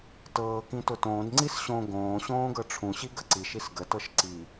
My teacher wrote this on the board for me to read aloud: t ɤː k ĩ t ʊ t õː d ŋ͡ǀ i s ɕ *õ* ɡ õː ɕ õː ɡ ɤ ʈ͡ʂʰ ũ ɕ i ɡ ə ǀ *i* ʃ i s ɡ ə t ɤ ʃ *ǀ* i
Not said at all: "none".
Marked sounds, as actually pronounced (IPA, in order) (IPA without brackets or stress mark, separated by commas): õ, i, ǀ